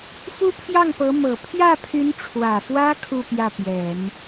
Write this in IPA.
f u˥ pʰ j ɑ˥˩ ŋ p ɤ˧˥ m ɤ˨˩ pʰ j ä˥˩ pʰ y˧˥ n ʈ͡ʂʰ w ä˨˩ f w ä˥ kʰ u˥˧ p j ä˥˩ p j ɛ˨˩˦ n

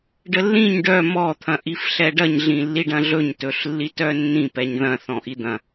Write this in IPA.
ɖ ə lː ĩ ɲ ɖ œ m ɔ t̪ʰ ɐ̃ ʔ i f ɬ ɛ ɖ ɐ ɲ ɮ ĩ lː i ɖ ɐ̃ ɮ ɵ ɲ t ɵ ɬ lː i t œ nː ĩ p ɛ ɲ ð ɐ̃ θ ɔ̃ ʔ i d̪ ɐ̃

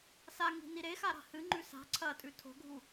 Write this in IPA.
s a ŋ i̤ n i ɾ e x a ɾ a̤ h ɨ ŋ͡ǃ ʉ s a̤ ǀʰ ɐ tʼ ʉ tʰ o̤ ɡʱ u

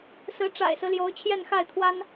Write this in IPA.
s ɹ̩˧˥ ʈ͡ʂ a̰˨˩ ɪ̯ s ɹ̩˦ l j o˧˥ ʊ̯ t͡ɕʰ j ɛ˥˧ n x a˥˩ ɪ̯ t̪ʰ w a˥ n

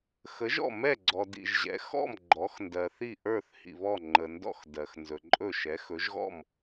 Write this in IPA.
x ə˩˥ ʒ ɔ̰˥˩ m ɛ˥˩ ɡ͡ǀ ɔ˩ d ḭ˩ ʒ ʑ ɛ̰˩˥ x ɔ̰˥˩ m ɡ͡ǃ ɔ˩˥ x n d ɜ˩ θ i˥˩ ʔ ə˞˥˩ θ h ḭ˩ β ɔ˥˩ ŋ͡ǃ ə˩ n d ɔ̰˥˧ x d ɜ˩ x n z ɵ˩ ǃʼ ɵ˥˩ ʃ ɛ˩˥ x ɵ˩˥ ʒ ɣ ɔ̰˥˩ m

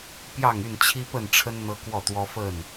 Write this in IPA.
p j ɑ˥˨ ŋ y˥˨ n t͡ɕʰ i˦ p ə˥˨ n ʈ͡ʂʰ ə˦ n n̪ ɤ˦ k w ɔ˥˨ t̪ w ɔ˦ f ə˥˨ n

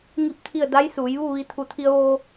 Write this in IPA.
ŋ i˥˨ p̚ t̪ʰ i˥˨ ə̯ d a˧˥ j s uː˩˧ j ʋ u˥˨ ʋ i˧ t̪ʰ u˧˩ t̪ʰ i˧ ə̯ ʋ oː˧

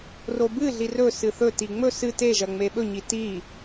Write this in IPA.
r o b ɨ ɮ i r ɵ s ɨ θ ɵ t i ŋ͡m ɵ s ɨ t e ʒ ɐ ŋ͡m e ɓ ɵ ɲ i t i

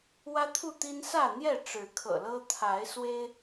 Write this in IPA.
w ä˦ t̪ʰ u˥˨ t̪ i˦ n s ä˥˨ n̪ j ɛ˥˨ ʈ͡ʂ ɻ̩˨˦ kʰ ɤ̰˨˩ l ɤ˦ t̪ʰ a˨˦ ɪ̯ s w e˦ ɪ̯

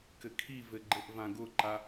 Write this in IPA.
k ɘ kʰ i v ɘ ɡ͡ǃ ɘ ʔ v ã ɡ ʊ ǃ a

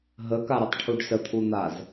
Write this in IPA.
ɦ ə k a ɾ ə tˤ ʈʰ u ɖ s ə t̪ʰ u n̪ a z

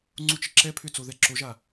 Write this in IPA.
ŋ͡ǀ u t͡ʃ ə ǁ ɛ pʰ ʏ t͡s o ð ɛ ǁ o ʒ a

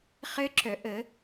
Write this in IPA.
χ ɘ˦˥ ǁ œ˨˩˦ ʔ ə˨˩˦

